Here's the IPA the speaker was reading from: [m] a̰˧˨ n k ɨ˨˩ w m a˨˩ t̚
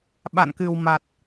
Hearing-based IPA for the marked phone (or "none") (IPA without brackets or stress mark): ɓ